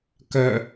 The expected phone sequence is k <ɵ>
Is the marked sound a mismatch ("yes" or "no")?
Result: yes